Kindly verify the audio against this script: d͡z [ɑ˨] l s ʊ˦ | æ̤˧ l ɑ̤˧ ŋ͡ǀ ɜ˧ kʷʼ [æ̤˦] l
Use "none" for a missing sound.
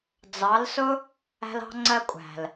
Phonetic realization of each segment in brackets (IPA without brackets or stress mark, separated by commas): ɑ˨˦, æ̤˨